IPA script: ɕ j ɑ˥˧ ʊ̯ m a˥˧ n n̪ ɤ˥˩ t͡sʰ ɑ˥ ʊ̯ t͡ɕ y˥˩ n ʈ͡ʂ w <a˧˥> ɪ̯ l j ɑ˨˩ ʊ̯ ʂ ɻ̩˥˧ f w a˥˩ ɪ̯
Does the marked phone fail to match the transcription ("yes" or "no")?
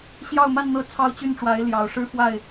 no